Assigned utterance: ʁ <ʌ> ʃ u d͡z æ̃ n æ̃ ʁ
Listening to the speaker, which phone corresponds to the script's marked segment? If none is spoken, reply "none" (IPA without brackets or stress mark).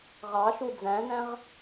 ɑ